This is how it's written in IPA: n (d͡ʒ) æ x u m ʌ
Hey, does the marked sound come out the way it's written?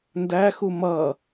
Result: no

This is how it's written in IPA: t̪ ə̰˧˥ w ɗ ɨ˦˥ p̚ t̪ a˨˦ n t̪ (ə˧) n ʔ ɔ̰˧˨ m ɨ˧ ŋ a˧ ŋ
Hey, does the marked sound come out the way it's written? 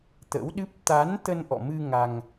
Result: yes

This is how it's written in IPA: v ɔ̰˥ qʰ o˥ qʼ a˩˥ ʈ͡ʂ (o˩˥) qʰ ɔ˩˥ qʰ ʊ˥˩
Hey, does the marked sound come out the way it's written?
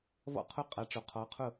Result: no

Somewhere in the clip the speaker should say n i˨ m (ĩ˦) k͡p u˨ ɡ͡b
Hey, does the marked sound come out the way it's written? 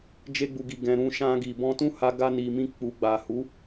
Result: no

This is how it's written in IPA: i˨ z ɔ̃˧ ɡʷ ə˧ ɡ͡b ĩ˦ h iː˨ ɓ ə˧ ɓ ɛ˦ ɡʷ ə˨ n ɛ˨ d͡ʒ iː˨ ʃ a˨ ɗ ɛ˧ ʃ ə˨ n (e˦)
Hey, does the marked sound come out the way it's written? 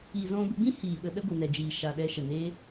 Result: yes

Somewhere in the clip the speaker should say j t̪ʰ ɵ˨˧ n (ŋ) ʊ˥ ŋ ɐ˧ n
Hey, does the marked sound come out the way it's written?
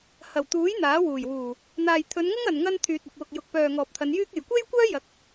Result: yes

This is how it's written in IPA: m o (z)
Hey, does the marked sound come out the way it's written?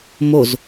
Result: yes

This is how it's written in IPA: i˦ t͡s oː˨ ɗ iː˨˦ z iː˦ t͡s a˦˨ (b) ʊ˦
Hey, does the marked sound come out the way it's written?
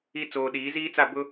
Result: yes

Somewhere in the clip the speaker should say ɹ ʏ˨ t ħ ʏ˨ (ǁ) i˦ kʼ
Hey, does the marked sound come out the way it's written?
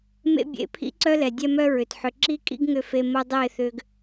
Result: yes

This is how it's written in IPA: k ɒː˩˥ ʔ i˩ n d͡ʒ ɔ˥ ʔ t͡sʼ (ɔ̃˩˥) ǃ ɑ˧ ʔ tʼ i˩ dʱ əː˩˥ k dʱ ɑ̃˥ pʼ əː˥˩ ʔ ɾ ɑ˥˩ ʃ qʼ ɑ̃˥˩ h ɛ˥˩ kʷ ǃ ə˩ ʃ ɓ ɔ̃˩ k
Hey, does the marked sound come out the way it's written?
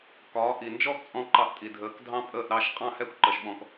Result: no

